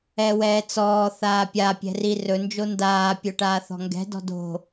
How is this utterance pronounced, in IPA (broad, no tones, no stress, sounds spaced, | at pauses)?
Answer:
ɛ w ɛː t͡s ɔː θ aː pʲ a pʲ ɛ̤ r i r ɵ n d͡ʒ o n d aː pʲ ɵ ʈ aː θ ɔ̤ ŋ ɡ ɛ̤ d ɔ̤ d o̤